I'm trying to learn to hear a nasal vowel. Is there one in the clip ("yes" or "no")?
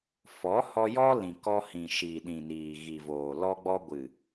yes